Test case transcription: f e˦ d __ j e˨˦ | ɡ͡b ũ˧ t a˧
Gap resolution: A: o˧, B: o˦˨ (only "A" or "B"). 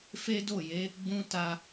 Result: B